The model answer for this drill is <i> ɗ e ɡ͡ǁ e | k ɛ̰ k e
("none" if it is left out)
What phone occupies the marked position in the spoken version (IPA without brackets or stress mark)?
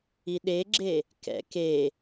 i